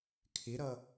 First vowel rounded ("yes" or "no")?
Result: no